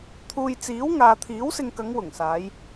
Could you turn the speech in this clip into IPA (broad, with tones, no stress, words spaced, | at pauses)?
t̪ʰuː˨jt͡siː˨˥w ŋaː˨t̪ʰiː˨˥wsɪ˧ŋkɐ˨˧ŋ wʊ˨˩ŋsaː˨˧j